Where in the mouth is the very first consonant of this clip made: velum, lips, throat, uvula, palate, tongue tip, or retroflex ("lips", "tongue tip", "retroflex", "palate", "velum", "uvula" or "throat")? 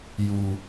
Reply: palate